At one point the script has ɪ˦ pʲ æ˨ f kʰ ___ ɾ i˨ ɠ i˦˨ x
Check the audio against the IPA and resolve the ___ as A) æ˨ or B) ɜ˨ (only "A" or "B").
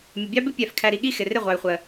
A